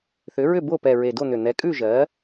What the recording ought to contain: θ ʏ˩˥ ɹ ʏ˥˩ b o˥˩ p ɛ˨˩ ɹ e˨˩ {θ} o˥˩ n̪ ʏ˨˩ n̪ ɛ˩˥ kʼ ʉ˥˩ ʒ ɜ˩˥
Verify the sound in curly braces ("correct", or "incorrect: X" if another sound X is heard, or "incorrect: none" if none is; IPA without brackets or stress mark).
incorrect: d